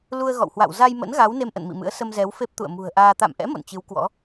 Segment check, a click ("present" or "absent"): absent